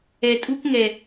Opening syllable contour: low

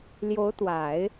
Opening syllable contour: rising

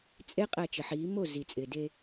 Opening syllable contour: high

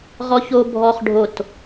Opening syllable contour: high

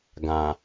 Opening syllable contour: low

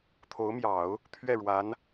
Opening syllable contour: rising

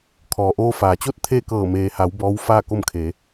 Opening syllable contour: low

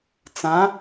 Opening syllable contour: rising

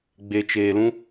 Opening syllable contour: low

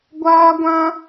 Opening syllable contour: high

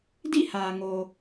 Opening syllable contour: falling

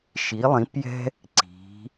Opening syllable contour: rising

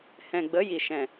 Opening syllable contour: low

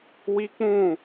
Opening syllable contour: high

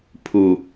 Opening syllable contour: low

